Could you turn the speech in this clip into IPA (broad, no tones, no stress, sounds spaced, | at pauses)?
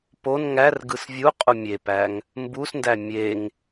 p o n ŋ æ r ɡ ɯ s vʲ u qʼ u mʲ e p æ ŋ | m b u s n d æ mʲ e ŋ